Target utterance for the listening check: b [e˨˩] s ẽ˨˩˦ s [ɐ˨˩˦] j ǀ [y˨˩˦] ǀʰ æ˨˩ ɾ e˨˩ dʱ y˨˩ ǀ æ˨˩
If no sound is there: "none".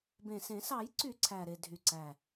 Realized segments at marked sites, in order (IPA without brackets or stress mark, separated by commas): ẽ˨˩, ɑ˨˩˦, y˨˩˦